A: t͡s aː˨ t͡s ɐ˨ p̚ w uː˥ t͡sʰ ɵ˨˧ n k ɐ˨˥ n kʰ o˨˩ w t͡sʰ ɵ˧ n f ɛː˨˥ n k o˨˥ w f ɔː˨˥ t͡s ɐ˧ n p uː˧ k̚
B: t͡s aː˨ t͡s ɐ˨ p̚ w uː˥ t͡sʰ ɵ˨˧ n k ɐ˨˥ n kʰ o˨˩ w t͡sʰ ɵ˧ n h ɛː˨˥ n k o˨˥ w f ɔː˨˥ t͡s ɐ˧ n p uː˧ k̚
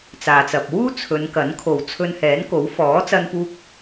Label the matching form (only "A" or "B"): B